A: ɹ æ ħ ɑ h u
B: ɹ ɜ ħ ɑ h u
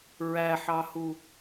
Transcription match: A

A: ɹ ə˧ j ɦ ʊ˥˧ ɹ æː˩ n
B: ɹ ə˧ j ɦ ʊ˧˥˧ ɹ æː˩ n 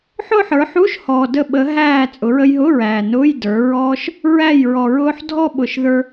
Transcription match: B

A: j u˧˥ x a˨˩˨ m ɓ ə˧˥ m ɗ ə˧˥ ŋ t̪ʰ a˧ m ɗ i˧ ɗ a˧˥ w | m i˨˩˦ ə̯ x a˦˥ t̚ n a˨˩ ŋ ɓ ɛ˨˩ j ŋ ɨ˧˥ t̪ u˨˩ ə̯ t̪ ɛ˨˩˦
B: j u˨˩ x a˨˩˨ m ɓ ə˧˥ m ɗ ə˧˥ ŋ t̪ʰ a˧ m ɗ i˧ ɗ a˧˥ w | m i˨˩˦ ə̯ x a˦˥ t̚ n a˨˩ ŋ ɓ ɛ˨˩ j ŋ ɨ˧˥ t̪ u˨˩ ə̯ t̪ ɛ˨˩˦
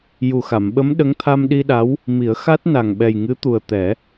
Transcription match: B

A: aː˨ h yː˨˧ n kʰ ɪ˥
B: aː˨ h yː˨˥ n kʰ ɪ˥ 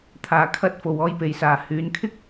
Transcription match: A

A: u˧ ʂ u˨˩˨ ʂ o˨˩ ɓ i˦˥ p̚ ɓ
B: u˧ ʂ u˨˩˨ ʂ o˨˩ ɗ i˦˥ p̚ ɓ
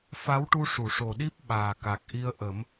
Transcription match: B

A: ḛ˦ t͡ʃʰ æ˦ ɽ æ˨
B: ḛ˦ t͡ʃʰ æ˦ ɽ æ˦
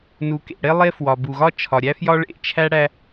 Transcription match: B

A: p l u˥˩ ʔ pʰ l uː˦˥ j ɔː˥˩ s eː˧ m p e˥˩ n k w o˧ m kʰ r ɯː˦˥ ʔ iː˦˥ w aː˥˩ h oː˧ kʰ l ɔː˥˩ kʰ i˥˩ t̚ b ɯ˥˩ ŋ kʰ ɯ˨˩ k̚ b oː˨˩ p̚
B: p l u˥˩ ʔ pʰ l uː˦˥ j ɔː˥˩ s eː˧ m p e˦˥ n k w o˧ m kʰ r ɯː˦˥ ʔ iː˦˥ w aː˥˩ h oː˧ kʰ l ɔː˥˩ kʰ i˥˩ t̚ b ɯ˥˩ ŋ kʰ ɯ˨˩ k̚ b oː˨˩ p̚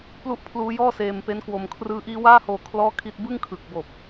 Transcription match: B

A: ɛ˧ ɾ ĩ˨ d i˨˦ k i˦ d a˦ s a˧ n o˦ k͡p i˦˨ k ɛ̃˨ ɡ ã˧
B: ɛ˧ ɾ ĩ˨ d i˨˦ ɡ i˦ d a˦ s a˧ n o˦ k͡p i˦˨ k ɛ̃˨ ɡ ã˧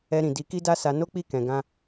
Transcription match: A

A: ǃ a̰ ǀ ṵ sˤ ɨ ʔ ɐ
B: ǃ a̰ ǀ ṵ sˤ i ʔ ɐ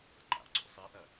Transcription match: B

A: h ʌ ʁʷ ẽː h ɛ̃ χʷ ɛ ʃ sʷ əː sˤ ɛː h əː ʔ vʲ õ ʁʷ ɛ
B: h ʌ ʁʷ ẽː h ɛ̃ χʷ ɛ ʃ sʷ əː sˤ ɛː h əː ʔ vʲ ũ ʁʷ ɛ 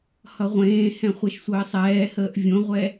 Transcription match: A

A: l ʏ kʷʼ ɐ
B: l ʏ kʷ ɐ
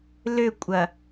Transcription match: A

